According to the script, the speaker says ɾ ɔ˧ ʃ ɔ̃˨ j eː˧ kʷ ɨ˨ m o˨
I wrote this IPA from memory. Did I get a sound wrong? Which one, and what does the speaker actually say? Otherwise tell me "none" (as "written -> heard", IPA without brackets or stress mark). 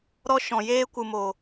none